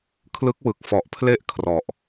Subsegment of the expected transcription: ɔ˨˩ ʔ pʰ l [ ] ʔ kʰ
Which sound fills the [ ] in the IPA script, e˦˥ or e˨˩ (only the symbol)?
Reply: e˦˥